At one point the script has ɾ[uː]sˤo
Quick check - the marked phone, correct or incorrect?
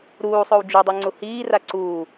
correct